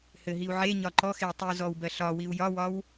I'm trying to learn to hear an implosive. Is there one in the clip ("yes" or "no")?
no